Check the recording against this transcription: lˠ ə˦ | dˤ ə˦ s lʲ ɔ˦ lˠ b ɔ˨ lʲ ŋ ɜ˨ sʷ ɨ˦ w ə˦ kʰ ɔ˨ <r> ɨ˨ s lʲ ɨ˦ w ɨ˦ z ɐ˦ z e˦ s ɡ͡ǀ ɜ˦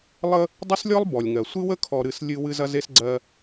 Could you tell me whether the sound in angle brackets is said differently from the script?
yes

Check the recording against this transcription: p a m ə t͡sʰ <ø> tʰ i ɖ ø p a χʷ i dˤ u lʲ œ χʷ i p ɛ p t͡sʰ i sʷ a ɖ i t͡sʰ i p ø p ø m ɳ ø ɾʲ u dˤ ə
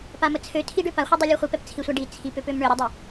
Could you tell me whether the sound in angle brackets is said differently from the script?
no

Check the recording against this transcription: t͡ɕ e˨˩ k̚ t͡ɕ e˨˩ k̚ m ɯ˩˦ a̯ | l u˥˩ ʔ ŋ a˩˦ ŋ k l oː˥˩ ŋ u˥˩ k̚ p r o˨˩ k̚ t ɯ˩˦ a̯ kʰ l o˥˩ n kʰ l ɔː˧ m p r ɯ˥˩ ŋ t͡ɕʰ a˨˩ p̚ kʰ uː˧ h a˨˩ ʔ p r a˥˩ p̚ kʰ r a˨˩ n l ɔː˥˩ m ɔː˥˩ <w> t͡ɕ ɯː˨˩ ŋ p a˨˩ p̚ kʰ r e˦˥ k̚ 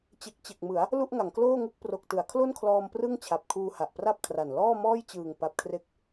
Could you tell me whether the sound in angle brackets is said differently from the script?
yes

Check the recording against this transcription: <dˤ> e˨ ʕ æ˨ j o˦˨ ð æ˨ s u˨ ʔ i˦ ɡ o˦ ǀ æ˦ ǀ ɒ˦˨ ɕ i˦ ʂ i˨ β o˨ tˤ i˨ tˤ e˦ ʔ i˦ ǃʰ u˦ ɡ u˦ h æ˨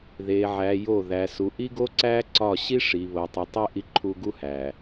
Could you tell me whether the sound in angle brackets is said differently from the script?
yes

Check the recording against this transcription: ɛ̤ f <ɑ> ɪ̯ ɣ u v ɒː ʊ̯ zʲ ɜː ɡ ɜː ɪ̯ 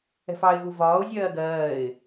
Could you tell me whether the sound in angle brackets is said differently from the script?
no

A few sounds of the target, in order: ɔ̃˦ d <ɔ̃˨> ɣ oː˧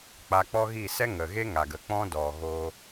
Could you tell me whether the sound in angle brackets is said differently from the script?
yes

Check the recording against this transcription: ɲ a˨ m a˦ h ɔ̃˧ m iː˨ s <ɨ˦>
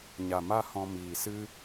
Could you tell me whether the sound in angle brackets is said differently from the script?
no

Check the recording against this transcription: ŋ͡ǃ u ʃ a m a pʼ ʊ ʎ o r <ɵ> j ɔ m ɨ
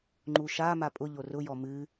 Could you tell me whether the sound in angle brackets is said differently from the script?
yes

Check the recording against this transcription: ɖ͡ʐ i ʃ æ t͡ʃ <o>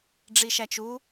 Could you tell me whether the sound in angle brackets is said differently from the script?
yes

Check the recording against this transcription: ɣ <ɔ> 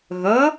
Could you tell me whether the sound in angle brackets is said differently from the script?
yes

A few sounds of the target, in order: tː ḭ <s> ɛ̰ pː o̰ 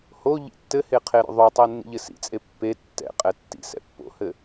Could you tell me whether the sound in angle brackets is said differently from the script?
no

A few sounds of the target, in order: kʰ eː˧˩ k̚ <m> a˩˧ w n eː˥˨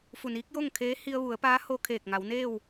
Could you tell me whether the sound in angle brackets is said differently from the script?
yes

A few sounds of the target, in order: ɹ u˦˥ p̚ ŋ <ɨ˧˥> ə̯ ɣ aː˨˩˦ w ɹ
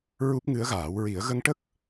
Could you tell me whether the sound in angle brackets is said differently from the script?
no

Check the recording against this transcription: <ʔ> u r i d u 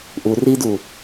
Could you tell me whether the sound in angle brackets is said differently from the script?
no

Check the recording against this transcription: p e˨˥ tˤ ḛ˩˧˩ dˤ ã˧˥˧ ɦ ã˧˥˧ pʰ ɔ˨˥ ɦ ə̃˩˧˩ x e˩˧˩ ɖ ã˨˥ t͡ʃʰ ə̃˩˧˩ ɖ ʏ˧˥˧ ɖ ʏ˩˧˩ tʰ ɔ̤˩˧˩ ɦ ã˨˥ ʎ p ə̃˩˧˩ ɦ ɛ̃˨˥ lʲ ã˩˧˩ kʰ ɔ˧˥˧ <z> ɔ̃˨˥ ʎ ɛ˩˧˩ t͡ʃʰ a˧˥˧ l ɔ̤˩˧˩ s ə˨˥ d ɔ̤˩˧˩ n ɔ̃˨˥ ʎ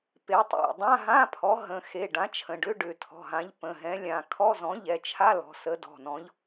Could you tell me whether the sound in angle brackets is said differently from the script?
no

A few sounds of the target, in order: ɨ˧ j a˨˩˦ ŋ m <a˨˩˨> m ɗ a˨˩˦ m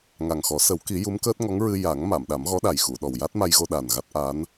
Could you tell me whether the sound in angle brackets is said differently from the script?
no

